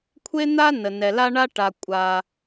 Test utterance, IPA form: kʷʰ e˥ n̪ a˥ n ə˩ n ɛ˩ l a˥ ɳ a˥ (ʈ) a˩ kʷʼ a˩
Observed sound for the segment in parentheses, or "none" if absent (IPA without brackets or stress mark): ʈ